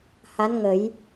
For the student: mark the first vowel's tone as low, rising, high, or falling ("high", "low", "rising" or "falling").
rising